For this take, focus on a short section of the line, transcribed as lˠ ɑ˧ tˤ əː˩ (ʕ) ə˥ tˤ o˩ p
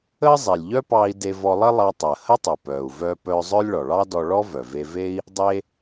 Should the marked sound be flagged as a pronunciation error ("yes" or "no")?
yes